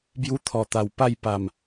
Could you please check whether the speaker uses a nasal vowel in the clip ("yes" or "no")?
no